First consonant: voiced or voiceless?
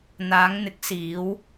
voiced